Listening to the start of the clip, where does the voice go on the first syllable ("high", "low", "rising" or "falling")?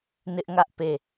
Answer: high